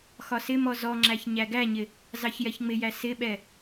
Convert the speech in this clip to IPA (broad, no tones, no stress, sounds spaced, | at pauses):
x ɒ s ɪ m ɔ z ɔ ŋ͡ǁ æ ç ɲ æ ɡ æ ɲ ɪ | z ɑ ç j ɛ ç ŋ͡m ɪ j æ s ɪ ɓ ɛ